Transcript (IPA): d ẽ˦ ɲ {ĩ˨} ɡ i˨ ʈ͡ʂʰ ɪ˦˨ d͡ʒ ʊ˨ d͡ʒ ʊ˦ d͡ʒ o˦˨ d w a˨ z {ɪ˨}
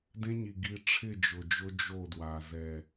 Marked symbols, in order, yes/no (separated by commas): no, no